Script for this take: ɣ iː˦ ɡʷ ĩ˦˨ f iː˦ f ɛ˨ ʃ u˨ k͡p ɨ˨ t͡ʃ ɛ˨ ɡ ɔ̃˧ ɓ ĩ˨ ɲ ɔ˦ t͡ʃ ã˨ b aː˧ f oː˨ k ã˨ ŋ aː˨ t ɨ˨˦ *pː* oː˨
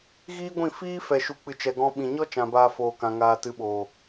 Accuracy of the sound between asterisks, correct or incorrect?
incorrect